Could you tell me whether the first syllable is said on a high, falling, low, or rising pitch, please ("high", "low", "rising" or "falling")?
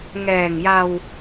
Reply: low